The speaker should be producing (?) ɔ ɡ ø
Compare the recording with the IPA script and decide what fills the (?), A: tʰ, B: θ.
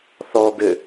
B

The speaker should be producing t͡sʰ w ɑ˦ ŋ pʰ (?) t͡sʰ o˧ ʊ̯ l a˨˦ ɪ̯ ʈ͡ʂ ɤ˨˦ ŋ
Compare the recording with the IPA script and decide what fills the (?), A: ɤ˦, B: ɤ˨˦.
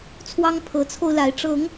B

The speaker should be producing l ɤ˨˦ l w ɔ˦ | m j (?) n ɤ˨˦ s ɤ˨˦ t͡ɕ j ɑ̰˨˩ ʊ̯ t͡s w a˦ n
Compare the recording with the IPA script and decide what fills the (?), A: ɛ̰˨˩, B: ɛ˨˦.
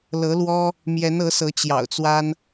B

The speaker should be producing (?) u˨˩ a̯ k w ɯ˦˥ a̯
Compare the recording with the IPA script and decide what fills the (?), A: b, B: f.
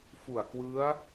B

